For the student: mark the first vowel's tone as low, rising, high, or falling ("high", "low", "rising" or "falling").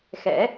rising